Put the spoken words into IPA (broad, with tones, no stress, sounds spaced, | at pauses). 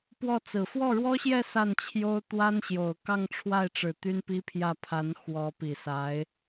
p w ɔ˥˩ t͡s ɹ̩˨˩ f w ɔ˥˩ ɻ w ɔ˥ ɕ j ɛ˥˧ s a˥˩ n t͡ɕʰ j o˥ ʊ̯ t̪ w a˥ n ɕ j o˨˩ ʊ̯ k ɑ˥˧ ŋ ʈ͡ʂʰ w a˥˩ ɪ̯ ʈ͡ʂ ɻ̩˨˩ t̪ y˥ n p i˥ pʰ j ä˥˩ pʰ a˧˥ n x w ɔ˧˥ p i˨˩ s a˧˥ ɪ̯